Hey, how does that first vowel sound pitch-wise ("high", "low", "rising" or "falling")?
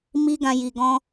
high